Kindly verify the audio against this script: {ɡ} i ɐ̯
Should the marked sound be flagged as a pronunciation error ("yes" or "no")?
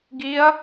no